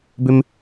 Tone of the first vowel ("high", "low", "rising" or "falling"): high